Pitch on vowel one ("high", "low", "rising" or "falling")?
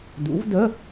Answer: rising